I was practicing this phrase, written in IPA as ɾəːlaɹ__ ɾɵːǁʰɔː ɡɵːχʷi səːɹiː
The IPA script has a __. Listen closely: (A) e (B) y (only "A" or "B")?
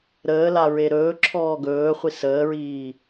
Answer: A